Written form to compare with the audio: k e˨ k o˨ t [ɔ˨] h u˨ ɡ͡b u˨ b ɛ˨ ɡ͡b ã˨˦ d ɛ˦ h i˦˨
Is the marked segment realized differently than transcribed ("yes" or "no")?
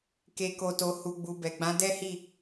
yes